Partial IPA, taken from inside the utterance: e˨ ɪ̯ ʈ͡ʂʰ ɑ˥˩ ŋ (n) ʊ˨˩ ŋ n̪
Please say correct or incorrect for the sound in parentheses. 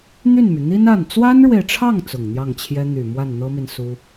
incorrect